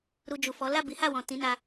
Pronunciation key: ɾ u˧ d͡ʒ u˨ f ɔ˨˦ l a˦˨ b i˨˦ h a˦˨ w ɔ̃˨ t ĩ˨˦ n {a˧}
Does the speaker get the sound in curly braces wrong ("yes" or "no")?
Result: no